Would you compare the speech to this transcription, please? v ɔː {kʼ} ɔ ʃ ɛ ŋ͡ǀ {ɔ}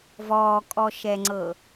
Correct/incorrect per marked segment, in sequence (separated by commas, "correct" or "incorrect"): correct, incorrect